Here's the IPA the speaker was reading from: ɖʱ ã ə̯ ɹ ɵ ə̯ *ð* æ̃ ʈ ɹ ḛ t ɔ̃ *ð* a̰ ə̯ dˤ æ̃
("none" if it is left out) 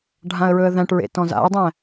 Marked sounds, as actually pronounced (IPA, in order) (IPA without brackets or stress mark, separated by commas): ð, z